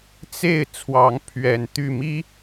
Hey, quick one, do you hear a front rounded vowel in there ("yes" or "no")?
yes